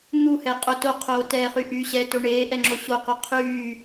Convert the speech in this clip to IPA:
n̪uhɛqʼo toqʰoːtɛːχy ʔy ɕɛto ɳeːʔɛŋ͡ǁo ɕoqo qʰyː

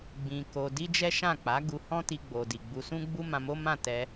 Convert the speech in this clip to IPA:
ɡ͡bĩ˧ko˧ di˦d͡ʒɛ˦ʃã˦˨ k͡pa˨˦ ɡu˧hɔ̃˦ti˧ɡ͡bo˨ di˨ɡ͡bu˧sũ˦ɡ͡bu˦ mã˧mo˦mã˦˨ tɛ˧

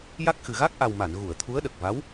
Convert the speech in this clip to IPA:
ja˦˥k̚xɨ˨˩ ɣa˦˥k̚ʔa˨˩w ma˨˩˨n ɣu˨˩˨ə̯t̪ʰu˧˥ə̯ ɗə˨˩k̚va˧˥w

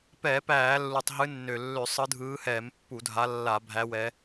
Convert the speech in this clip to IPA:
pɛː˧˩˧p æː˧˩˧lːu˨˩tˤ ɦɨ˨˦nːø˨˩lːø˧˩˧ sˤɯ˨˦dʱɯː˨˦hɛː˧˩˧m pːu˧˩˧dʱa˨˦ lːa˧˩˧ bʱæ˨˦wɛ˨˦

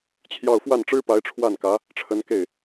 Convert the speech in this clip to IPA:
t͡ɕʰjɑ˥˧ʊ̯ fwa˥˩nʈ͡ʂɻ̩˥pa˧˥ɪ̯ ʈ͡ʂʰwa˥˩nkä˧˥ | ʈ͡ʂʰə˧˥nke˥˩ɪ̯

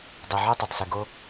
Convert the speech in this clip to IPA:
dˤe˨ʕœ˦tˤœ˨tˤse˨ ɡo˦

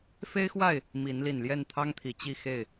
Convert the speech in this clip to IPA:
fe˦ɪ̯xwa˥˨ɪ̯ | mi˨˦n li˨˩nljɛ˥˨nt̪ʰɑ˦ŋt̪ʰi˨˩ t͡ɕi˥˨xe˥˨ɪ̯

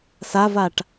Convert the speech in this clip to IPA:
savaʈ

